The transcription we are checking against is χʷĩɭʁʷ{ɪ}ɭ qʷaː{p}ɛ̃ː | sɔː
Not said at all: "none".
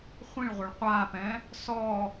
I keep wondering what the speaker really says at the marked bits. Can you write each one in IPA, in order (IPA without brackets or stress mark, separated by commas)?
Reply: ɪ, p